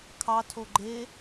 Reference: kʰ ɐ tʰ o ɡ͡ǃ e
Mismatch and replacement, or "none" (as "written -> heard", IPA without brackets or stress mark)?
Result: ɐ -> ɑ